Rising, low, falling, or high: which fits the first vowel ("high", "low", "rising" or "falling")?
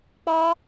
high